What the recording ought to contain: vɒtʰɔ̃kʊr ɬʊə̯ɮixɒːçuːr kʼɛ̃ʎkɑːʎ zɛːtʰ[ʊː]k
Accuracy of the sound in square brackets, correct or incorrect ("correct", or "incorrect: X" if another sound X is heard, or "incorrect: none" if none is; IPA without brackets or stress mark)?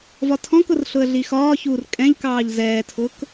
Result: correct